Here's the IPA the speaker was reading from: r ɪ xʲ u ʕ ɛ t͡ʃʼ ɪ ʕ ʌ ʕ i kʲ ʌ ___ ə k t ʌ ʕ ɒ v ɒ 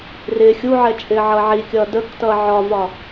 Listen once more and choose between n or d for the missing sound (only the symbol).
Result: d